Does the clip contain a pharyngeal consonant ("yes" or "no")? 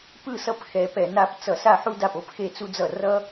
yes